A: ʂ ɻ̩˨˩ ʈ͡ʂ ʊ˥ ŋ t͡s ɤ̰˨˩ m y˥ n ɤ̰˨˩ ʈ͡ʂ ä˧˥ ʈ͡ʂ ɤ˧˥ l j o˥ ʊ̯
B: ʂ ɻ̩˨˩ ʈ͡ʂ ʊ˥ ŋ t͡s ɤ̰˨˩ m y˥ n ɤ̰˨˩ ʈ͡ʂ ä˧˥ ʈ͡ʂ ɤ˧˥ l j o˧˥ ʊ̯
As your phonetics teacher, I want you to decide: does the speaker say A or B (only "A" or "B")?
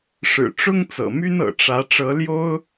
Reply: A